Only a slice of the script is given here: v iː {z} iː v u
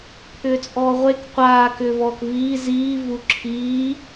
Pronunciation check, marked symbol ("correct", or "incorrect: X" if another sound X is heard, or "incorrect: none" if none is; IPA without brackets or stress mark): correct